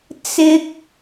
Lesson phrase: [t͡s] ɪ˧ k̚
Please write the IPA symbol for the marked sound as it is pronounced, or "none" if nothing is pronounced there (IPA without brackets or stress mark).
t͡s